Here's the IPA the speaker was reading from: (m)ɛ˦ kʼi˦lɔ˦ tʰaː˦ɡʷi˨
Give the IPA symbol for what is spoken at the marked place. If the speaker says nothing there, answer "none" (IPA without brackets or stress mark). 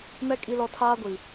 m